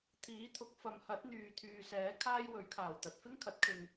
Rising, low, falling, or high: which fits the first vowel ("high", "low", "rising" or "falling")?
rising